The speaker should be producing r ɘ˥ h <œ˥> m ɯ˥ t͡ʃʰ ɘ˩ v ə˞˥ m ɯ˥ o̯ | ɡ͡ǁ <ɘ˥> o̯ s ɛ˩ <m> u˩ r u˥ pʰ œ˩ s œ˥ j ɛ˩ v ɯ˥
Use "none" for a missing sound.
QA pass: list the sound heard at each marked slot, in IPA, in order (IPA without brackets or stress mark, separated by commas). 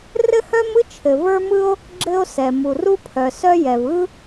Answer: œ˥, ɘ˥, m